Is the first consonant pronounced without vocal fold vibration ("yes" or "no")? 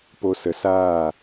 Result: yes